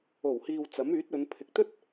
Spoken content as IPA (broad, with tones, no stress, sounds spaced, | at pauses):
o˨˩ w h iː˨ w t͡s ɐ˨˥ m yː˨˥ t̚ ɵ˨˧ n pʰ ɪ˨ k̚ t̪ ɵ˥ t̚